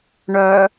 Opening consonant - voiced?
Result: yes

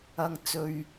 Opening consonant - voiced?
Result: yes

